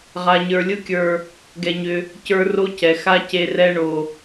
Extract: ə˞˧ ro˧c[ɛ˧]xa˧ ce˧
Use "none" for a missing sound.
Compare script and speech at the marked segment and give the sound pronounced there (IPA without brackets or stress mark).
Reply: ɛ˨